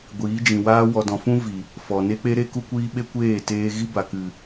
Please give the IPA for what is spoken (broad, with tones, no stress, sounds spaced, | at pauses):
ɡʷ iː˨˦ d͡ʒ ĩ˨ w aː˦ w ɔ˨ d ɔ̃˨ f ũ˦ v i˨ | f ɔ˨ n e˦ k͡p e˦ ɾ e˦ k u˦ kʷ iː˦ ɓ e˦ kʷ eː˦˨ t eː˧ ɣ i˦ b a˨ k ɨ˨